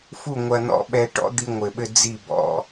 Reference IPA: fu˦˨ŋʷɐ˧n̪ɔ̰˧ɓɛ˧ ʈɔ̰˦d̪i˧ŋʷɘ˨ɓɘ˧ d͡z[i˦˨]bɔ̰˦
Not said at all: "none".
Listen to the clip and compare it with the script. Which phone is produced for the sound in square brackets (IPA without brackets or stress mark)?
i˦˨